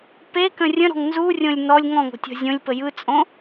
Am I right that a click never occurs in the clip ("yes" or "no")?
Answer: yes